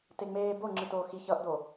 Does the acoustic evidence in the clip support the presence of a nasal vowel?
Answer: no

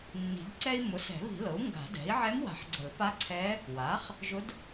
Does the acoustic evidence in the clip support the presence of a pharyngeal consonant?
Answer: yes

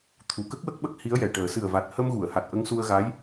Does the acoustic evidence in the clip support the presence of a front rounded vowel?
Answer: no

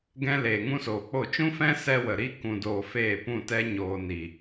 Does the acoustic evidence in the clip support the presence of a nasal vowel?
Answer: yes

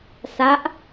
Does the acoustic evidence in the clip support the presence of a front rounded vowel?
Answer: no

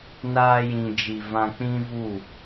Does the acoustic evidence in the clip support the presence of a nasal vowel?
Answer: yes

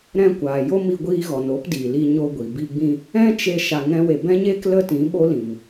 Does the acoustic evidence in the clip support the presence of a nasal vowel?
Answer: yes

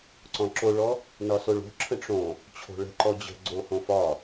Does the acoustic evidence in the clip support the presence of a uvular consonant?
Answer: no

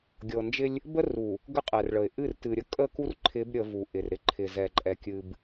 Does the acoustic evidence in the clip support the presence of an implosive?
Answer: no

